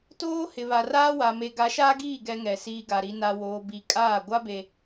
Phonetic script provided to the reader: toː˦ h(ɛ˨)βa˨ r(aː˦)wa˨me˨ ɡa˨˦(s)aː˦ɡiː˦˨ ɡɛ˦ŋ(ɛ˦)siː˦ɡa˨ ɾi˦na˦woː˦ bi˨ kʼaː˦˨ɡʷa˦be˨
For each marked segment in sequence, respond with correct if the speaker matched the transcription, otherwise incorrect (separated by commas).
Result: incorrect, correct, incorrect, incorrect